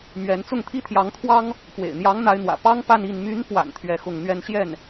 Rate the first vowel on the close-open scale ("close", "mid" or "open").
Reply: mid